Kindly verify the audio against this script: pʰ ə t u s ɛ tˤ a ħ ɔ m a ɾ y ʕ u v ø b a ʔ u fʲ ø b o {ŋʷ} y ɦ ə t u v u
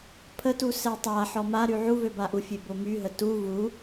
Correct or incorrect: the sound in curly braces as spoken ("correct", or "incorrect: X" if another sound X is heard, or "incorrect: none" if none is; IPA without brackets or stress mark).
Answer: incorrect: m